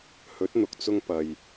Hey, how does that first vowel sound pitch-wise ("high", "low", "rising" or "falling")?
rising